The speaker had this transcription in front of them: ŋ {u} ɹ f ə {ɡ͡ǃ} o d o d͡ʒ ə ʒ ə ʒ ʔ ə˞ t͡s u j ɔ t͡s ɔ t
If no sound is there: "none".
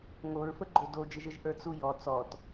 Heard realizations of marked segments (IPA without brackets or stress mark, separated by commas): o, ɡ͡ǃ